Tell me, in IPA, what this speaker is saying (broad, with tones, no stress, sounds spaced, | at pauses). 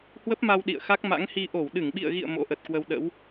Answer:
h w ə˦˥ p̚ m a˧ w ɗ ḭ˧˨ ə̯ x a˦˥ k̚ m a̰˧˥ ŋ h i˧ ʔ o˧˩ w ɗ ɨ˧˩ ŋ ɓ ḭ˧˨ ə̯ ɣ ḭ˧˨ ə̯ m o̰˧˥ ʔ ə˨˩ t̚ k w ə˧ w ɗ ə̰˧˥ w